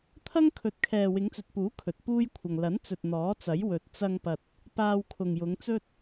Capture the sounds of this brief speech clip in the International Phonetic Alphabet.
t̪ʰ ɐ˥ ŋ kʰ ɵ˨˥ t̚ kʰ ɛː˨ w ɪ˨˧ ŋ t͡s ɵ˨ t̚ p uː˨˥ kʰ ɵ˨ t̚ p uː˥ j kʷʰ ɐ˨ ŋ l ɐ˨˥ n t͡s ɵ˨ t̚ n̪ ɔː˨˥ t͡s ɐ˨˥ j w ɵ˨ t̚ t͡s ɐ˧ ŋ p ɐ˨ t̚ | p aː˧ w kʰ ʊ˨ ŋ j ʊ˨˧ ŋ t͡s ɵ˥ t̚

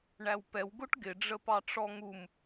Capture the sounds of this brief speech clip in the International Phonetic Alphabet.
ɳ æ w p ɛ w ɡ ʊ ʈ ɡ ɪ ɖ͡ʐ ə p ɑ ʈ͡ʂ ɔ ŋ u m

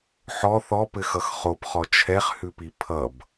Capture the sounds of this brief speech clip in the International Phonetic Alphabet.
ħ ɔ θ ɔ p ɘ x ʌ x χ o p χ ɔ t͡ʃʰ ɛ χ h ʉ p i pʰ ʌ b

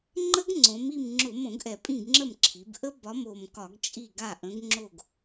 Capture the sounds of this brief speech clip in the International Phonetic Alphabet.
ŋ͡ǃ ə˦˥ ɡ ŋ͡ǀ õ˩˧ m i˦˨ m ŋ͡ǁ ʊ˧˩˧ m õ˧˩˧ ɡ ʔ ɛ˨˩ pʼ ĩ˦˨ ɡ ŋ͡ǁ ə˦˨ m ǁʰ i˩˧ b ʔ ə˦˥ b ɒ˨˥ m o˨˩ m k ɒ˧˩˧ ɡ t͡ʃʼ i˦˨ ɡ a˦˨ ʔ ə̃˨˥ ɡ ŋ͡ǁ o˦˨ ɡ

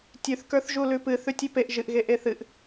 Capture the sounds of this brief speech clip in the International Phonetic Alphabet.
tʲ ʉ θ k ə˞ θ ʒ u l ʉ p ɨ θ ʉ tʲ ʉ p e ʔ ʒ ɨ ʔ ɣ e ʔ e θ ɨ ʔ

